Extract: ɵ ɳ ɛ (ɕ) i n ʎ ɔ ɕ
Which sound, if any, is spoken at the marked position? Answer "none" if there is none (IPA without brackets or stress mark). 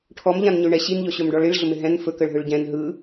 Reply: ɕ